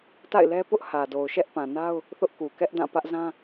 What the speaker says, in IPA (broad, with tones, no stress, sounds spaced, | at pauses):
t a̰˦˨ ɪ̯ l ɛ˦ p ʊ˦ ʔ h ä˨ d o˨ ʊ̯ ʃ ɛ˦ ʔ p ã˨ n a˦ ʊ̯ | θ ʊ˦ ʔ k u˨ k ɛ˦ ʔ d ã˦˨ p ä˦ ʔ z ã˦